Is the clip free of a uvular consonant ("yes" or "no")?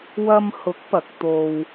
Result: yes